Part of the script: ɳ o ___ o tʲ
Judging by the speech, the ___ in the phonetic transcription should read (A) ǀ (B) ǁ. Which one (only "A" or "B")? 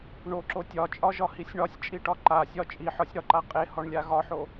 B